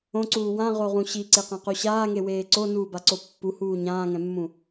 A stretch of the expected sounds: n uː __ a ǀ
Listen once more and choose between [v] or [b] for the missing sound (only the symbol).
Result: b